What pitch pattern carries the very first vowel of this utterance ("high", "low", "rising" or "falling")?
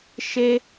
high